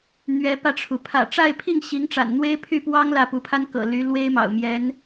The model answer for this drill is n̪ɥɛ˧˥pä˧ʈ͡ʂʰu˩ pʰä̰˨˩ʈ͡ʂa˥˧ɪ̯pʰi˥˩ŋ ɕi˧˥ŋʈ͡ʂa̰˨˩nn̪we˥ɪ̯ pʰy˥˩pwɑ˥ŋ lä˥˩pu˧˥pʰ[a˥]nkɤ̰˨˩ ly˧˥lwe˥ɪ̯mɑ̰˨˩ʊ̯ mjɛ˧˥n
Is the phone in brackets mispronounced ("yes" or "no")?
no